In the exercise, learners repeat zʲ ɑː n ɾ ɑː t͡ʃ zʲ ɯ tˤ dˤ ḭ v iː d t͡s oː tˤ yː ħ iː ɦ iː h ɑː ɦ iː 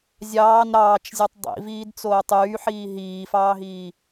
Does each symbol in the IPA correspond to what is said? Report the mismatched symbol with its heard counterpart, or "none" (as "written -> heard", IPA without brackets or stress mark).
h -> f